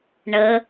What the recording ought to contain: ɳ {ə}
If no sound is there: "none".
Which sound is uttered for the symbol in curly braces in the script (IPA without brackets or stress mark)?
ə